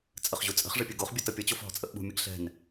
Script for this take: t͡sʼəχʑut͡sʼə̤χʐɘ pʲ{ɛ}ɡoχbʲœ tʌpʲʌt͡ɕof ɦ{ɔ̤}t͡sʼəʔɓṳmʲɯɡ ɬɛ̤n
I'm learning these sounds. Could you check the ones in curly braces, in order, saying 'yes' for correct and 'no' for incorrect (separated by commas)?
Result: no, yes